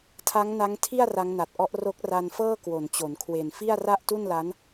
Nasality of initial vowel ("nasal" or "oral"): oral